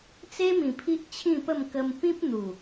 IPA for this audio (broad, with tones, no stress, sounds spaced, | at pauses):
t͡s e˦ m ĩ˨˩ pʰ i˦ ʔ t͡ɕʰ ĩ˥˧ p ə˥˧ m k ə˧ m p ĩ˦ p̚ n̪ u˨˩